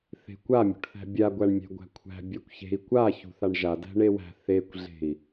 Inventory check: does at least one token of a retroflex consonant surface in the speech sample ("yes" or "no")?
yes